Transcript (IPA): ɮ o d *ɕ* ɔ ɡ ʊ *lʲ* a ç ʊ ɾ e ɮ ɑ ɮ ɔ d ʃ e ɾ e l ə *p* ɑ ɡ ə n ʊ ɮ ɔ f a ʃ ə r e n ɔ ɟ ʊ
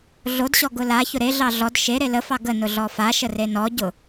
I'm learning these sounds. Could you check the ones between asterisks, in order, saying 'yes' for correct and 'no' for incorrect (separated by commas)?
yes, no, no